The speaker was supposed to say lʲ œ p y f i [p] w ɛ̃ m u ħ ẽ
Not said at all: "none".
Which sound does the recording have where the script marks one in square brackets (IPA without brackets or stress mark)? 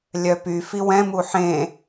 none